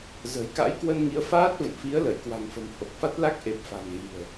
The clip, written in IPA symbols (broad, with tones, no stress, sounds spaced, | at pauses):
z ə̤˨˩ j k a̰˧˥ j k w ə˧ n ŋ i˨˦ ə̯ f aː˦˥ t̚ v ə̰˧˨ n f i˨˦ ə̯ l ə˧˩ j k w a̤˨˩ ŋ f ə̤˨˩ m h o˨˩ k̚ f a˦˥ t̚ l a˦˥ k̚ ʔ e˨˩ p̚ f a̤˨˩ ŋ ɣ i̤˨˩ ə̯